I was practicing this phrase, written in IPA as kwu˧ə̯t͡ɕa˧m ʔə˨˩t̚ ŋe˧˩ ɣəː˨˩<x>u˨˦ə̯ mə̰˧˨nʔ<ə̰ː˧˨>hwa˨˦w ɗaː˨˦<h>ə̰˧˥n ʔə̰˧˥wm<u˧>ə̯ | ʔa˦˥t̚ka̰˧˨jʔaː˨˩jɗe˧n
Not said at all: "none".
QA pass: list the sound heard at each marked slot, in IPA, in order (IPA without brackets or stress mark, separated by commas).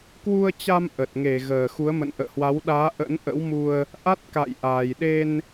x, ə̰ː˧˨, ʔ, u˧